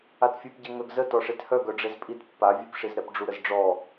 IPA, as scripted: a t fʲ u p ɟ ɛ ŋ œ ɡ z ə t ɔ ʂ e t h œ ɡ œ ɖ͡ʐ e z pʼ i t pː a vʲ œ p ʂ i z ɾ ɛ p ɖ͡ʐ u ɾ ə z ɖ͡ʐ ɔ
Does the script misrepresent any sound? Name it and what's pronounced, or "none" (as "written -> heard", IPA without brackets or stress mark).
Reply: none